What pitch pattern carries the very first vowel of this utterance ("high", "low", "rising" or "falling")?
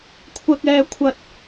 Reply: high